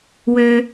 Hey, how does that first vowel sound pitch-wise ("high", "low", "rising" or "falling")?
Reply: low